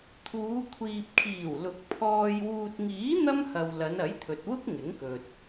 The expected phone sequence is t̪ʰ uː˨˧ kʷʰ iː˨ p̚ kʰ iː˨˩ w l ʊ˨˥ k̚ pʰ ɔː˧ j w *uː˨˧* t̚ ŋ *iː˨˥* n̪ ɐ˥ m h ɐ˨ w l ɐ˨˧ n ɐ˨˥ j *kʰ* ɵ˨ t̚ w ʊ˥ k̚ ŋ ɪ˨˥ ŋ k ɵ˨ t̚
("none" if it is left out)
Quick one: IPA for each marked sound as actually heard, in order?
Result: uː˨, iː˨˥, t̪ʰ

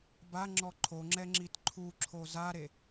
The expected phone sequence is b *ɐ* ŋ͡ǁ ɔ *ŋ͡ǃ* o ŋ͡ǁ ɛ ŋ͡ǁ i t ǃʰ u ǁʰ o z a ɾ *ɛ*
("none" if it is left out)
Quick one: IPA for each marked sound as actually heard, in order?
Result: a, ǃʰ, e

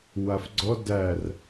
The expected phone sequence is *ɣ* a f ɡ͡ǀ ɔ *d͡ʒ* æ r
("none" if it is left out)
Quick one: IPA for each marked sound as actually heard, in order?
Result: w, d

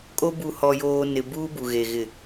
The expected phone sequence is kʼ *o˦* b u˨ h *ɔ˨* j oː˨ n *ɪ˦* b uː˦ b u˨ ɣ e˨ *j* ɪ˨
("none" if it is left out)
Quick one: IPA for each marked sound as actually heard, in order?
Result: o˦, ɔ˨, ɪ˨, ɣ

